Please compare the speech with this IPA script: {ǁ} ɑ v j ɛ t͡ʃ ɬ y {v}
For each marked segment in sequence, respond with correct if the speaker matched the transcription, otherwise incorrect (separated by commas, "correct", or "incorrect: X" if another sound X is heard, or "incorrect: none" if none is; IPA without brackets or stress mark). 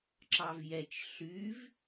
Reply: correct, correct